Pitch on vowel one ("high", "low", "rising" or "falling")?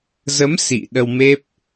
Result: rising